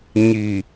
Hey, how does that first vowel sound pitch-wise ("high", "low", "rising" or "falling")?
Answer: low